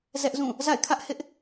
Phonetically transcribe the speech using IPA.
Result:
zɛ˦ʔzũ˦˨ | za̰˦˨ɪ̯kʰä˦ʔ hɪ˦ʔ

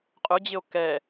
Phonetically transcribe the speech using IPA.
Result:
qʼʊd͡ʑɪo̯ kɛ

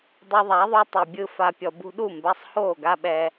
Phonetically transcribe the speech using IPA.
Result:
dˤɯ˧ðˤa˨˦ðˤu˧ tˤɯ˨bʲɯ˧ fa˨pʲɔ˨ bṳ˧ɗu˦˨mba˧sˤ hoː˦˨ɡa˦ɓɛ˧

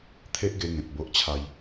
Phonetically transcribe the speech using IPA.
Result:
t̪ʰe˦ʔɡe˧ŋẽ˨t̚ bo˦ʔt͡ɕʰa˦j

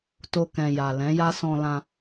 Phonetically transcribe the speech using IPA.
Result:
to˧kɛ̃˨ ja˨ lɛ̃˨˦ja˦sɔ̃˧lã˧

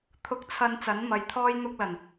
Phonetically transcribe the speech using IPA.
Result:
t̪ʰʊ˧k̚t͡sʰɐ˧n t͡sɐ˨˥nmɐ˨˧jt̪ʰɔː˥jn̪ʊ˥k̚ lɐ˨˩n

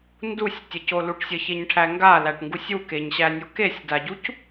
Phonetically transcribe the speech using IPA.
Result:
ndusʲ tʲəcoluʈ sʲəçeɲʈʰæ ŋɡalæʈŋɡusʲ ukeɲɕænʲo kesʲdaɟuc

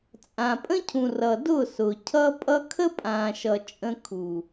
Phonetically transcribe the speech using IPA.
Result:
t͡sʼã˨pʼə̃˦cʰũ˨ rʌ˨dʊ˦˨sʊ˨ cʰʌ˦pʼʌ˦ kʰə˦pʼã˨ ʃʌ˨t͡ʃʼə̃˧kʰu˨

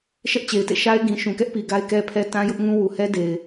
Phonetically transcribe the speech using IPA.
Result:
ʃɛ˦ʔt͡ɕe˨ɪ̯tḛ˦˨ ʃa˦ɪ̯ɡĩ˨ ʃũ˨kɛ˦ʔpi˨ ɡa˦ɪ̯kɛ˦pʰɛ˦ tã˦jʊ˦ʔŋũ˦ wu˨hɛ˦de˨ɪ̯

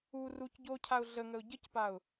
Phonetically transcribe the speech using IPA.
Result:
u ruc ɟocʰaʊ̯ ɮəŋəʊ̯ ɟəcpaʊ̯

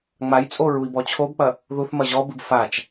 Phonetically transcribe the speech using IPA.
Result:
ŋ͡majt͡sʼo ɹui̯bɔt͡ɕʰobk͡pɐ | ðuθ mɐʑɔbɨb fat͡ʃ

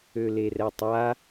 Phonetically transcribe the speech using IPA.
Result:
ølerɛtˤa

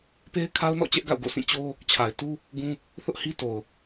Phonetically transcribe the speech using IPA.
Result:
pe˦ɪ̯kʰa˦ʊ̯nɔ̰˦˨ t͡ɕɛ˦ʔɡa̰˦˨ʊ̯ɡo̰˦˨sĩ˦˨ t͡ɕo˦ | t͡ɕʰa˨ɪ̯tu˦ | ɡũ˦ | θʊ˦ʔhi˦ to˨ʊ̯

